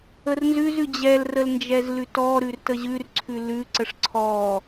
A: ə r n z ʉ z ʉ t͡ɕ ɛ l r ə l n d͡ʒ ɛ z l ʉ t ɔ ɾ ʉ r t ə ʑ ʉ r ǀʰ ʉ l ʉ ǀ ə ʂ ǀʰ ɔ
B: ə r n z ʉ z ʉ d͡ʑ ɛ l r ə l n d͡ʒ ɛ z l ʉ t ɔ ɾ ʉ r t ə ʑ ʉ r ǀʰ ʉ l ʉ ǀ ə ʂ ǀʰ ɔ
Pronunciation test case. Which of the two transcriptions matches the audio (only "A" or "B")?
B